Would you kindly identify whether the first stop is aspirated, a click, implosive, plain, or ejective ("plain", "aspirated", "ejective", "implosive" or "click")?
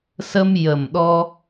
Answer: implosive